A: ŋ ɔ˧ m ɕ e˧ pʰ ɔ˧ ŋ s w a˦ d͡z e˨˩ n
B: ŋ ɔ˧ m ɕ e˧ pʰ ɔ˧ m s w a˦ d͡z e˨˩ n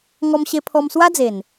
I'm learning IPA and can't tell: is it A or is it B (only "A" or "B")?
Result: B